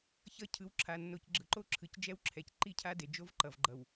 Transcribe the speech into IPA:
ç ʌ˦ cʰ ɯ˨˦ w ǁʰ a˨ nː o˨ c ɡ͡ǁ ɯ˨ ǃ o˦ ǁʰ ɯ˨ c d͡ʒ ɛ˦ w ǁʰ ɛ˨ c ǃ i˦ cʰ a˦ d e˨ d͡ʒ o˦ v ǃ ʌ˨ v ɡ͡ǃ ʌ˨ w

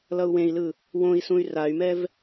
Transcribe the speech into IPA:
l ʌ u̯ w ẽ i̯ l ɯ | w õ i̯ s ũ y̯ r a y̯ m ɛ v

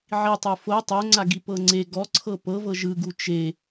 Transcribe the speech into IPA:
ʕ i tˤ o f o tˤ o ŋ͡ǀ a ɡ i p ɤ ŋ͡ǀ e ɡ ɔ ǀʰ ɤ p ɤ v ɤ ʒ ɯ ɡ u t͡ʃ e

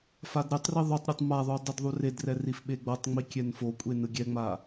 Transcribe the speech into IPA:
f a d ɾ e tˤ r i ðˤ u tˤ ɾʲ o tˤ m a ðˤ u dˤ ɯ d ðˤ u r e d r ɛ r i f ɓ e ɡ͡b ɤ tˤ ŋ͡m i kʲ ɛ n f o kʷʼ e n ɯ ɡʲ ɛ ŋ͡m a

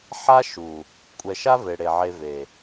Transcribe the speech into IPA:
ħ a˦ ʃ u˨ | kʷʼ ɛ˨ ʃ a˦ v e˨ ɽ e˨ ʕ e˧ v e˨

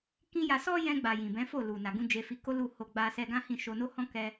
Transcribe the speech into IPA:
k ĩ˦ j a˧ s ɔ˦ j ɛ̃˧ ɡ͡b a˨ j ĩ˨ b ɛ̃˨˦ f o˦˨ l u˨ n a˨ ɡ ũ˧ d͡ʒ e˧ f i˧ k o˦ l u˦˨ h o˧ ɡ͡b a˧ s ɛ˧ ɡ ã˦ h ĩ˦˨ ʃ o˧ n o˦ h ɔ̃˦ k ɛ˦

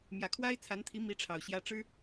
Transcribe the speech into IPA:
m j ä˨˩ kʰ w a˥ ɪ̯ t͡sʰ a˧˥ n t̪ʰ i˧˥ m i˥ ʈ͡ʂʰ ɑ˨˩ ʊ̯ ɕ j ä˥ ʈ͡ʂ ɻ̩˥

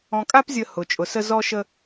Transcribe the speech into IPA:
ɔ̃˨ kʼ a˦ p zʲ ə˨ h ʊ˨ t͡ʃʼ ʊ˨ s ə˦ z ɔ˦ ʃ ə˦

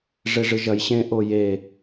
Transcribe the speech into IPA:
ʐ e ʐ ɨ ʒ ɐ j ɕ ẽ ʔ o j e

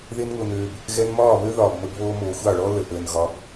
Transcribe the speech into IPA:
ð e˧ n ŋ ʊ˨ n øː˨ b | ɣ ɛ˧ n m ɒː˦˨ β ø˦ ð ɒː˨ b m ə˧ b β oː˧ m oː˨ xʷ ɑ˦˨ ɭ ɔː˦ l ə˨ ʔ əː˨ n ɣ ɒ˨˦ b

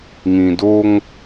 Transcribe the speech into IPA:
ŋ ĩ˨ d o˦ ŋ

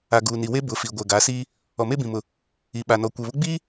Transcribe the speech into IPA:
a˨ ɡ uː˨ n i˨ w e˦ b ʊ˨˦ f i˨ ɡʷ ɛ˨ ɡ a˨˦ s iː˦ | ɔ˨ m e˦ b ĩ˨ m ʊ˨ | i˨ ɓ a˨ n ɔ˨ kʷ ɛ˨ β ʊ˦ ɡ͡b iː˦

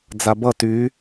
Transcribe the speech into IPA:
d͡z a b ʌ t y

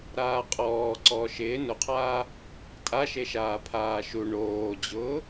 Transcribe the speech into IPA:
ɾ aː qʼ ɔː ǀ ɔː ʃ ɪː n ʊ qʰ aː | tʼ a ʃ e ʃ aː pʰ aː ʃ u ɳ oː d͡ʑ ʊː

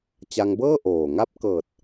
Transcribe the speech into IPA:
t͡ɕ a˧ ŋ b ɤː˥˩ ʔ oː˨˩ ŋ a˦˥ p̚ k ɤː˨˩ t̚

